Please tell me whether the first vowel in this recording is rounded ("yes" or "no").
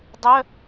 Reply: yes